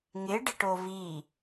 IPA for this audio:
ŋ ɪ ɖ ɪ ʈ o v i

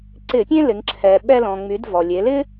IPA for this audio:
ǀ ɪ˧˩˧ pʲ ẽ˥ l ɪ˩˧ ŋ ǁʰ ɛ˩ ɓ ɛ˧ l ɔ̃˩ ŋ͡m y˩˧ d v ɔ˩ lʲ e˩˧ l ɪ˥

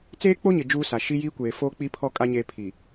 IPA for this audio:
t͡s eː˦ k͡p o˦ ɲ ɪ˨ d͡ʒ uː˦ s a˨ ʃ i˦ j iː˦ kʷ eː˨ f oː˦ k͡p i˦ pʰ ɔ˦˨ kʼ a˦ ɲ eː˦ pʰ i˨

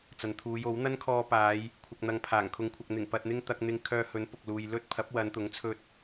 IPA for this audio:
t͡s ɐ˨ n t̪ʰ uː˨˧ j o˨˥ w n̪ ɐ˥ n kʰ ɔː˧ p aː˨˧ j | kʷʰ ɐ˨ k̚ n̪ ɐ˨ ŋ pʰ aː˨˩ ŋ kʰ ʊ˨˧ ŋ kʷʰ ɐ˨ k̚ n̪ ɪ˨˩ ŋ p ɐ˨ t̚ n̪ ɪ˧ ŋ t̪ ɐ˧ k̚ n̪ ɪ˧ ŋ kʰ œː˧ h ɵ˨˥ n p ʊ˨ k̚ l uː˨ j l ɵ˥ t̚ pʰ ɐ˨˥ p̚ w ɐ˨˧ n t̪ ʊ˨˥ ŋ t͡sʰ ɵ˧ t̚

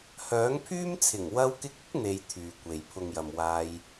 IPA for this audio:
h œː˨˥ ŋ pʰ yː˥ m t͡sʰ ɪ˨˩ ŋ w ɐ˧ w k ɪ˧ k̚ ɪ˥ k̚ n̪ e˧ j t̪ʰ yː˨ kʷ e˨ j pʰ ʊ˨ ŋ j ɐ˨ m w aː˧ j

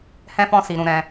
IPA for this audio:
h ɛ̃˦ f ɔ̃˦ s i˧ ɾ ũ˧ ɾ ɛ̃˧

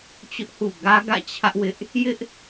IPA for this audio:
t͡ɕ ʊ˦ ʔ h ṵ˦˨ ɡ ä˦ ɡ ä̰˦˨ t͡ɕʰ ä˦ ʔ w ɪ˦ ʔ | j ɪ˦ ʔ

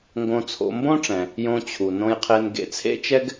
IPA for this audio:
ŋ ɡ õ˧ t͡sʰ o̰˧ m b õ˥ ʈ͡ʂ ɛ̃˩ | j õ˧ t͡ɕʰ u˩ n õ˧ j qʰ e˧ n ɡ ḛ˧ t͡sʰ ḛ˥ t͡ʃ ɛ˥ ɡ

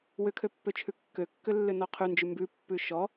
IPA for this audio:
w ʏ kʰ ø pː ø t͡ʃʰ ʉ kː ø kː ʏ lː ʏ n ɔ qʰ ʉ n d͡ʒ ʉ m b ʉ pː ʉ ʃ ɔ

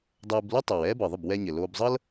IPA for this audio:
dˤ ɛː˧ b l u˥ tˤ o˩ w ɛː˥ b ɤ˩ ðˤ ə˥˩ b w ɛ˧ ɲ ɘ˩ l oː˧ b zˤ ɤ˥ l

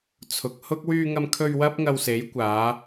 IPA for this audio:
t͡sʰ ʊ˨ k̚ h ʊ˥ k̚ w yː˧ ŋ ɐ˧ m kʰ ɵ˧ ɥ w ɐ˥ p̚ ŋ ɐ˧ w s e˨˥ j kʷ aː˨˧

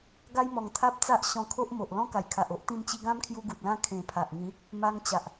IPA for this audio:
ɡ a˦ j m ɔ˨˩ ŋ t̪ʰ a˦ p̚ t͡s a˦ ʔ ɕ ɔ̃˧ kʰ o˦ ʔ m o˨ ʔ l ɔ̃˦ k a˨˩ j kʰ a˨ ʔ o˦ ʔ t̪ ĩ˧ m t͡ɕ i˧ ɡ ã˦ m kʰ j u˧ ɡ u˨ t̚ l ã˦ kʰ ẽ˨˩ pʰ a˨ ʔ ŋ ĩ˨˦ | m a˧ ŋ t͡ɕ a˨ ʔ

